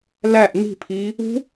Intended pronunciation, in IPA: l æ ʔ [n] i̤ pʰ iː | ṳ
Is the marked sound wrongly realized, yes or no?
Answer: no